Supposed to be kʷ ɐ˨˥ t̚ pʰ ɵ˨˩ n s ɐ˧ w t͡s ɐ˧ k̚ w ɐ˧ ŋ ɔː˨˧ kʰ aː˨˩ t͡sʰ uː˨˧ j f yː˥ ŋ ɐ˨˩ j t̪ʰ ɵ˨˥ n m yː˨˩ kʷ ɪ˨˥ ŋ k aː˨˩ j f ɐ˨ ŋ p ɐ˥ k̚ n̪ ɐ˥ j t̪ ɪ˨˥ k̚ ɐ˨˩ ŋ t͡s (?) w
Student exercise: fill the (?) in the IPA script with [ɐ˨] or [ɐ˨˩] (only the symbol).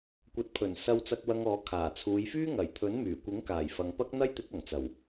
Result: ɐ˨˩